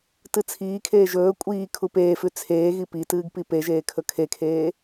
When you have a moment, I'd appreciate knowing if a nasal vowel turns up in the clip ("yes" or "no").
no